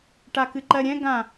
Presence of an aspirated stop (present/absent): absent